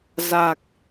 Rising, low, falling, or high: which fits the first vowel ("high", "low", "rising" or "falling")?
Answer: low